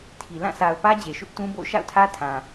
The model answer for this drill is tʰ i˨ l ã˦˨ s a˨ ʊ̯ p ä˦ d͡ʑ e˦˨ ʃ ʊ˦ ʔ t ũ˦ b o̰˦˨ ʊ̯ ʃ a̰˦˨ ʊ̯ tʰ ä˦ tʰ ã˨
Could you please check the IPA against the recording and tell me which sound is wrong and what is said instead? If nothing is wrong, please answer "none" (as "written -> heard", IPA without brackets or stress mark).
e˦˨ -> e˨